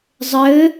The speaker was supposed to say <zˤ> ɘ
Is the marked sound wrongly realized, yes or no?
no